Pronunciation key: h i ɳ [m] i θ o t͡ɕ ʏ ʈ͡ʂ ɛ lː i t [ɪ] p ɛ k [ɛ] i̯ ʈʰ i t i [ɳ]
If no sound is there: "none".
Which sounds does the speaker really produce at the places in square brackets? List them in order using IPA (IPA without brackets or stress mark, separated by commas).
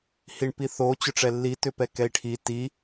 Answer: p, ʏ, ɛ, none